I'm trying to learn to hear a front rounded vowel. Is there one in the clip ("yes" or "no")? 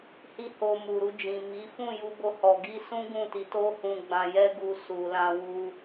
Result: no